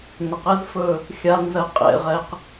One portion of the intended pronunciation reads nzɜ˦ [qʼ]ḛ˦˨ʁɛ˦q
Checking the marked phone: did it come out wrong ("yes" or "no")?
no